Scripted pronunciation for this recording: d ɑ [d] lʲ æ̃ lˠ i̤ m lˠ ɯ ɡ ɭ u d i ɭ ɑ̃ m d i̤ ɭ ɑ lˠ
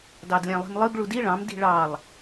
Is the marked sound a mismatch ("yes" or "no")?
no